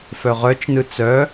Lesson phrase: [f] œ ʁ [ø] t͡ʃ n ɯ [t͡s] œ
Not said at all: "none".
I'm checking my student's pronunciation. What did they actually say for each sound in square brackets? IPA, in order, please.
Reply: f, œ, t͡s

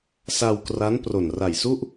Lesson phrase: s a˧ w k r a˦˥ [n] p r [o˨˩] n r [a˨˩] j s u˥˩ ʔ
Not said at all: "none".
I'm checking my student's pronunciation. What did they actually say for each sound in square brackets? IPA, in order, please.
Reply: n, o˨˩, a˨˩

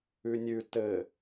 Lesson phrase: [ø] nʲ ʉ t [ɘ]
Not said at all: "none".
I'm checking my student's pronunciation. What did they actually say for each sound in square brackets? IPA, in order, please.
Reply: ʉ, ɘ

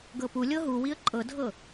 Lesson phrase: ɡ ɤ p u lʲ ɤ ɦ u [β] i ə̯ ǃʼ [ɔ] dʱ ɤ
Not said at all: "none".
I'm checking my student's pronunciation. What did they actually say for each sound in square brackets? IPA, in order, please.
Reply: w, ɤ

